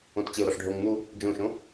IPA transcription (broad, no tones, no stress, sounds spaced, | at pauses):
õ t t͡ɕ e ʊ̯ ɾ ɒ ʂ ɖʱ o ŋ n̪ u | d͡ʒ õ ʃ õ